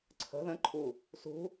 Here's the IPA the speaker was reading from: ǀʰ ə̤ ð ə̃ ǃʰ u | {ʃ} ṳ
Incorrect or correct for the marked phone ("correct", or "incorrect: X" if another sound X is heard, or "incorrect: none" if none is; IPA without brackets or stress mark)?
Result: incorrect: s